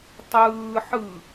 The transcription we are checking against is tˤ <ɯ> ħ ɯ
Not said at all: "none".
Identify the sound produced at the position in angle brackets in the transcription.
ɯː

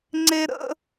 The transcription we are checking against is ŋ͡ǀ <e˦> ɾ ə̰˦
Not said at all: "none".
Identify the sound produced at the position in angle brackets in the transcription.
e˦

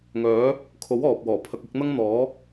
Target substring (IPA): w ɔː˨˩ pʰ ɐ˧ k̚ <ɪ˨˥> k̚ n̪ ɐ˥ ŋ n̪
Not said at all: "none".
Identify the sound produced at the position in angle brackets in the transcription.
ɪ˨˥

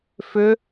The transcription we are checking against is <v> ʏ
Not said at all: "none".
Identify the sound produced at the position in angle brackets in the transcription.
f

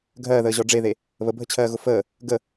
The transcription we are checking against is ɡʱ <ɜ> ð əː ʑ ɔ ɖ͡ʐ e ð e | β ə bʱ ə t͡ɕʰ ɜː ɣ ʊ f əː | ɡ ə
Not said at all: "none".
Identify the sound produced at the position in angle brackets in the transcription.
ɜː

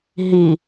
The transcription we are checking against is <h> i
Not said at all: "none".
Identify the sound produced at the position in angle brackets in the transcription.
ɦ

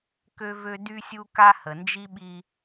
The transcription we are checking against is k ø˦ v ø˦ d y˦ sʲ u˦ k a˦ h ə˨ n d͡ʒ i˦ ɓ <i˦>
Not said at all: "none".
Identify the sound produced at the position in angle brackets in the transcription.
i˦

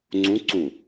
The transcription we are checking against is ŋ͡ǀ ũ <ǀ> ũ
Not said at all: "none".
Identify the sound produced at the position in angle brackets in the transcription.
ǀ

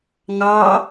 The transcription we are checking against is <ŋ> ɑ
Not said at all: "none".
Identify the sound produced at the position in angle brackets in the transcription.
ŋ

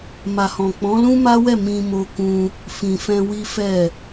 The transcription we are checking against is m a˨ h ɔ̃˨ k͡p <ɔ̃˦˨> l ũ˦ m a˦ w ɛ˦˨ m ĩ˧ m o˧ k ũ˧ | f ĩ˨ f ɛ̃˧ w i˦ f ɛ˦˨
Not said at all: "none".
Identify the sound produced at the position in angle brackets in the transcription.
ɔ̃˨˦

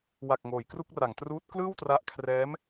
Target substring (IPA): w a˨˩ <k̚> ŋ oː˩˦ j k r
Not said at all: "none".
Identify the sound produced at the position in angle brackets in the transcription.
k̚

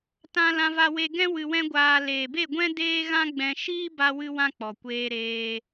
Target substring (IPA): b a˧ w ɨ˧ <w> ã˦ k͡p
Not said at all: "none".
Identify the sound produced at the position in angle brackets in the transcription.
w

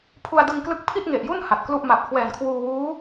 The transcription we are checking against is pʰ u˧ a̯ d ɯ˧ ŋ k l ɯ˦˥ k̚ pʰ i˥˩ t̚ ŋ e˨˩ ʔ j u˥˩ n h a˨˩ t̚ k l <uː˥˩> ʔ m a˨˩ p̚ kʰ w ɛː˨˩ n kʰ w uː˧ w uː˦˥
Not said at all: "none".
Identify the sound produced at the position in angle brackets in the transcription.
u˥˩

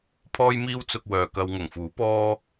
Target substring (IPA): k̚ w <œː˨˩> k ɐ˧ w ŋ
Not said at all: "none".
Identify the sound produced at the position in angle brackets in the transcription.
œː˨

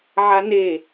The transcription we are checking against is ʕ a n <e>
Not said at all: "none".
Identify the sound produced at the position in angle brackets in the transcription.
e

